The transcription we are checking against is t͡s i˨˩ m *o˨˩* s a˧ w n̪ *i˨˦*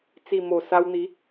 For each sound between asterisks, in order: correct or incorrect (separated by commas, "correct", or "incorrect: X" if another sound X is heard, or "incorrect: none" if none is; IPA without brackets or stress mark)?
correct, correct